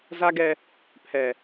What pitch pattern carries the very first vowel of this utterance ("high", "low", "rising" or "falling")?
high